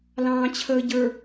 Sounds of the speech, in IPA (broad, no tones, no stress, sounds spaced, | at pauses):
l ɑ̃ː t͡ɕʰ əː ɟ ə˞